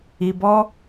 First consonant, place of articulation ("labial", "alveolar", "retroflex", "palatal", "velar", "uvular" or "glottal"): labial